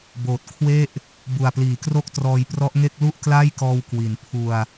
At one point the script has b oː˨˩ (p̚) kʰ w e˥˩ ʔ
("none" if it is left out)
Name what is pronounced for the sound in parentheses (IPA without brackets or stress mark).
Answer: t̚